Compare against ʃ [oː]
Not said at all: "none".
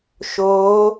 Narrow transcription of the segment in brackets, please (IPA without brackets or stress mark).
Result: oː